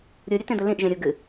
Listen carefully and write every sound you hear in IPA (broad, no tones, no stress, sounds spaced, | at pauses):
ɾʲ u ɾʲ ɘ t ẽ d̪ ɘ l ĩ ʔ ʒ ẽ ɾʲ u ɡ ɨ